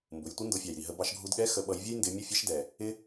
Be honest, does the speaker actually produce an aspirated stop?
no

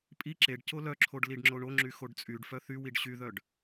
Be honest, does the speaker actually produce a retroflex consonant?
yes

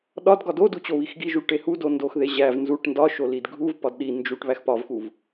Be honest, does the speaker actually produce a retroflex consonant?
yes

